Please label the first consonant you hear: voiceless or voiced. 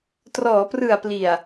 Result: voiceless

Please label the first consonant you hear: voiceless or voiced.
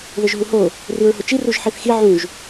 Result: voiced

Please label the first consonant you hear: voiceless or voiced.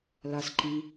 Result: voiced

